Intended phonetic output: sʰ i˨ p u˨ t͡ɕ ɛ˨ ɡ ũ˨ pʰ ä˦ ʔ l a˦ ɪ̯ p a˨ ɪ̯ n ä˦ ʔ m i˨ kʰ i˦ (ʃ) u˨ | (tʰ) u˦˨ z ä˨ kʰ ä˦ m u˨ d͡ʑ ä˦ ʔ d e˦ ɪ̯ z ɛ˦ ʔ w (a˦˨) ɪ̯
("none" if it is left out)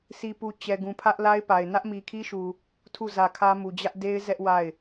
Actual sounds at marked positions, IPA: ʃ, tʰ, a˦˨

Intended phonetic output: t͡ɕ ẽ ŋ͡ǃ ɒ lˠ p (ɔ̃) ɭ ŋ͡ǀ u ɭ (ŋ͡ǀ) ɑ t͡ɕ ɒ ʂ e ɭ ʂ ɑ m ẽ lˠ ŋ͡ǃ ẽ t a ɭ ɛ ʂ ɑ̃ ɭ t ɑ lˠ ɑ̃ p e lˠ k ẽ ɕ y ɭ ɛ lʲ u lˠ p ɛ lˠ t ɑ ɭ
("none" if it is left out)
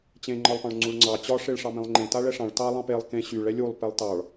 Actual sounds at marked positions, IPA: ɑ̃, ŋ͡ǀ

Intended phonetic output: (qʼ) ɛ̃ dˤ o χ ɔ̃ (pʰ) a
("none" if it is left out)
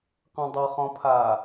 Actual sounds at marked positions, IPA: q, pʰ

